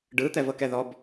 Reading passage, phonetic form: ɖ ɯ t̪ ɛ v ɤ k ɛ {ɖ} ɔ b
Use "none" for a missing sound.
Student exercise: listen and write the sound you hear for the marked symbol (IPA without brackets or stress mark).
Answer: ð